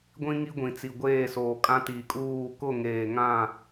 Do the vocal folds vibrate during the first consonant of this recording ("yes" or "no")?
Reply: yes